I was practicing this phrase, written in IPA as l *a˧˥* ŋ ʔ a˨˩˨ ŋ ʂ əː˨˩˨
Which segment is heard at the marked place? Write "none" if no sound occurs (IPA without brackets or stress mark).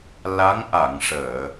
a˧˥